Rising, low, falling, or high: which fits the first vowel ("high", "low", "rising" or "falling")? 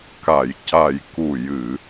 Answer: low